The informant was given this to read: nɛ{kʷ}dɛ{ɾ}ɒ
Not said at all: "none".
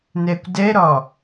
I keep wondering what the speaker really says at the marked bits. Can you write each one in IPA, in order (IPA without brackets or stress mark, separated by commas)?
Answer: kʷ, ɾ